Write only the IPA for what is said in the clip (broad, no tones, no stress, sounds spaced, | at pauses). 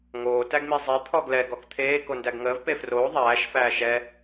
ŋ oː t æ ɡ m i zˤ ɛ t̪ʰ ɔ ɡ l ɛ ɡ ɔ k t̪ʰ eː k o n d æ ɡ ŋ əː v p e f r oː ðˤ æː ʃ f æː ʃ ɛ